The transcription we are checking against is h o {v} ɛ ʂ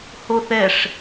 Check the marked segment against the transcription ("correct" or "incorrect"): incorrect